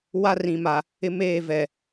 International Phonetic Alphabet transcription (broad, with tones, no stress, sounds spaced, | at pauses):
w a˦ r ĩ˨ m a˨ | ɪ˦ m eː˦˨ v ɛ˨